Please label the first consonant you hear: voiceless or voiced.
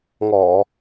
voiced